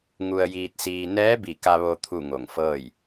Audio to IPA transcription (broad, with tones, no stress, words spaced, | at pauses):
ŋu˧ə̯jiː˧t̚siː˧ nɛː˧˥bi˧˩ ka˧ʋo˧ t̪ʰu˥˨ŋo˧˩ŋfɤː˥˨j